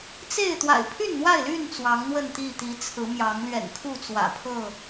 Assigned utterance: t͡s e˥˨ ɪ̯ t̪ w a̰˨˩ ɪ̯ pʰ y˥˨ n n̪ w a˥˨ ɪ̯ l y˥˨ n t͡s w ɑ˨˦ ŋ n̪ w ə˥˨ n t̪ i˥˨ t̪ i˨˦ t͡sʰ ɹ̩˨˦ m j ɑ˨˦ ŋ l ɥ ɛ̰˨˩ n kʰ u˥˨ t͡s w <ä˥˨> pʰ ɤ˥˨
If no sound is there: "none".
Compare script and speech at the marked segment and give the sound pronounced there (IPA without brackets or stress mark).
ä̰˨˩